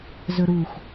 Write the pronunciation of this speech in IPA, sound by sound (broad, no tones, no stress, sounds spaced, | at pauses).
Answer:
z ɵ ɾ u x